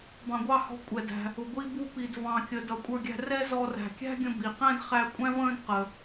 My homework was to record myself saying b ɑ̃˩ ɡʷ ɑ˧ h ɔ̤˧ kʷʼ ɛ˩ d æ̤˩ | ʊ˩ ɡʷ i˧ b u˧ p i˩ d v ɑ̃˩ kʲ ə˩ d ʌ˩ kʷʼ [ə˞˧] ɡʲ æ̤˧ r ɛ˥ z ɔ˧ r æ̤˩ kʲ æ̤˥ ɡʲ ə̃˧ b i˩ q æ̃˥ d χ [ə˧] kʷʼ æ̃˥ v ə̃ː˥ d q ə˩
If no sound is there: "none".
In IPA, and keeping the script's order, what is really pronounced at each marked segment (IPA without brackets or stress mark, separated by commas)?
ə˞˧, æ˧